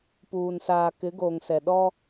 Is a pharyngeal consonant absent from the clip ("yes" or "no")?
yes